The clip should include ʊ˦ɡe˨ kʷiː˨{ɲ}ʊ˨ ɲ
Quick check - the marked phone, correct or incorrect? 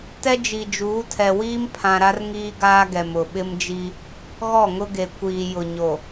incorrect